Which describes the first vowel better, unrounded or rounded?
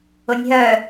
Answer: rounded